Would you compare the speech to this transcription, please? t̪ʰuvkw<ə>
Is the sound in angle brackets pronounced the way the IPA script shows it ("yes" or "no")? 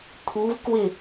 no